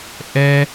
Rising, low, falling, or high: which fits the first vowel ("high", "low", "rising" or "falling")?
high